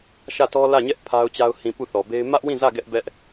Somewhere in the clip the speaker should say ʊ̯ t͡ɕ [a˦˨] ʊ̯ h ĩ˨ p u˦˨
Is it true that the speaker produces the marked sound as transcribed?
no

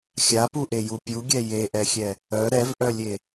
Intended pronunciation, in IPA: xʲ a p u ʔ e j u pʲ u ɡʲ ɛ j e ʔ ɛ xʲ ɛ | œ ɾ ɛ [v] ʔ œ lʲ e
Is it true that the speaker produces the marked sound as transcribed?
yes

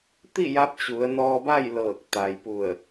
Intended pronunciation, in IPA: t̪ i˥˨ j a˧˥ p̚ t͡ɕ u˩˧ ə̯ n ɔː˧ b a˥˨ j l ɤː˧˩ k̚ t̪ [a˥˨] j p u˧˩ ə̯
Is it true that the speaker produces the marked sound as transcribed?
no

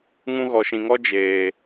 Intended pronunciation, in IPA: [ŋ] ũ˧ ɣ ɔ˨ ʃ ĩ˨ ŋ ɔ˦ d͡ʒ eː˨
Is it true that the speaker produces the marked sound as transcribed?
yes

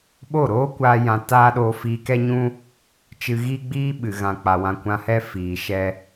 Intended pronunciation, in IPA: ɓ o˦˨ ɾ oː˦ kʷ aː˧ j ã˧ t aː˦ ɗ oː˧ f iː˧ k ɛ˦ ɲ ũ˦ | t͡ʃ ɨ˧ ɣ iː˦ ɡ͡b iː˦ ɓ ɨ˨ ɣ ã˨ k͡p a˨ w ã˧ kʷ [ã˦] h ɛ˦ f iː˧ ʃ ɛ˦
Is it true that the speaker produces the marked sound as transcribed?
no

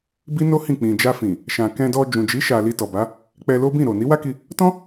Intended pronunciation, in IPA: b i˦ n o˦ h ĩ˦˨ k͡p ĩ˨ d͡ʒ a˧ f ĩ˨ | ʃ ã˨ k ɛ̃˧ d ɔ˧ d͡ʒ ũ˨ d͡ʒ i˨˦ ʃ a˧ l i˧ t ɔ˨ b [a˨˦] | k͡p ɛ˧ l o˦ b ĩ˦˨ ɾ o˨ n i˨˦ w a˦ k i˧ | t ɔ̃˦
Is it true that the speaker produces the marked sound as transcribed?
yes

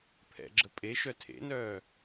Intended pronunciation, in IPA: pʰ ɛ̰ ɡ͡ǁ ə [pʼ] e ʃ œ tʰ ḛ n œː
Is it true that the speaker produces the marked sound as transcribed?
yes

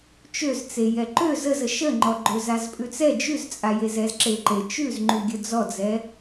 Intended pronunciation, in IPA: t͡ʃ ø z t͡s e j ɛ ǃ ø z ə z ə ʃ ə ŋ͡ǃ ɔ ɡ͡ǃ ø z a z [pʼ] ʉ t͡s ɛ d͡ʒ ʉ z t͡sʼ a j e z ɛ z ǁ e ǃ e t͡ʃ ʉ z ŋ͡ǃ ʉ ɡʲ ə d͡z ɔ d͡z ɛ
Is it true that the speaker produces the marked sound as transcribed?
yes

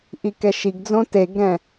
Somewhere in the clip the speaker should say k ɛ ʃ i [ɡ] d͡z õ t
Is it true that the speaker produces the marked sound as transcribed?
yes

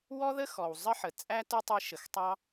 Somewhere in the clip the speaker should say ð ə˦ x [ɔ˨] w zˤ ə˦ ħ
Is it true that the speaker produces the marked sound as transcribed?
yes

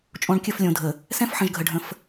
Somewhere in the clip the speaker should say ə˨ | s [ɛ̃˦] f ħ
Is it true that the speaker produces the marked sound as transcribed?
yes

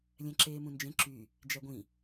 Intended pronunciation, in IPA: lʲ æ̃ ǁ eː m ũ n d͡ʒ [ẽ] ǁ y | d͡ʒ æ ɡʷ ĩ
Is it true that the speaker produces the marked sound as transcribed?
yes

